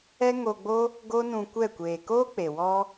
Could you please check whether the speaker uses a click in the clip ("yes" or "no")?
no